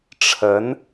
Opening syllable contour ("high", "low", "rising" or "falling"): rising